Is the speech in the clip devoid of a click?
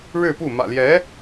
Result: yes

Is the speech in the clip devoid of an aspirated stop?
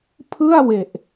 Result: no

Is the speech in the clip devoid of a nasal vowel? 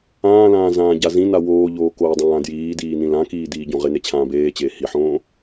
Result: no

